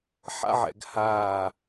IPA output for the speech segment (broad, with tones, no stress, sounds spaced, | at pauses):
ħ a̰˥ ʕ ɛ̰˩˧ ɡ h aː˧˩